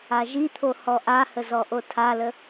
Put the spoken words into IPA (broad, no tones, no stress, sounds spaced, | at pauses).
a ʒ i t̪ʰ o h ɔ ʔ a h ə z ɔ ʔ o tʰ a l ə